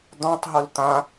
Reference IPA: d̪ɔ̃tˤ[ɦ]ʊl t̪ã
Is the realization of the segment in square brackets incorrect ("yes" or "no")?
no